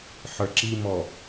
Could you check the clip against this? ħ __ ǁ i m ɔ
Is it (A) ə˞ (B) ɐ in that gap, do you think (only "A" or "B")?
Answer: A